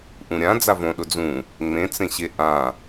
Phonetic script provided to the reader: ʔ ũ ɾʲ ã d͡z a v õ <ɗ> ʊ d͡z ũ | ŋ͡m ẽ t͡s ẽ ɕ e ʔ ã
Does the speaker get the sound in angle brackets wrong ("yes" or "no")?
no